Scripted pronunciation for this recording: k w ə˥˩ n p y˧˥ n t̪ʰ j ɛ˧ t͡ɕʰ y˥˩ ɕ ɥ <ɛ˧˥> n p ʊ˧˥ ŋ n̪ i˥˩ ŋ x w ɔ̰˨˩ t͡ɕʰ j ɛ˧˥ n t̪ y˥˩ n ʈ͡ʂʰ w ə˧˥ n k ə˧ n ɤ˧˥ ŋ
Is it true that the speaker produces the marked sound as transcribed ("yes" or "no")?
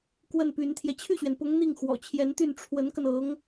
no